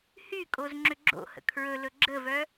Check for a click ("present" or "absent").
present